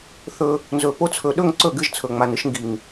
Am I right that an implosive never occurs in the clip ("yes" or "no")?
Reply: no